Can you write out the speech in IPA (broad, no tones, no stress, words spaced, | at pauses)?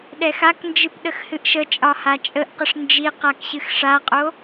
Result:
ɗɛxaknd͡ʒɨp ɗəxhɨʔʃət͡ʃʼɒ hat͡ʃʼəʔqəʂ nd͡ʒi qakɕɨxʂaqʼo